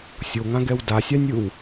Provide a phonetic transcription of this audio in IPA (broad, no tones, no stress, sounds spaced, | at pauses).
sʲ o ŋ ã ɡ ɛ w d a sʲ a nʲ ɯ w